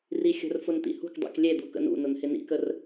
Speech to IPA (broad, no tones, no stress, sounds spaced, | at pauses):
r i xʲ ə̤ r f ʊ n t̪ ḭ h ṳ k dˤ ḭ k lʲ e d̪ u k ə̰ n ṵ n ʊ n h ɪ n ḭ k ə r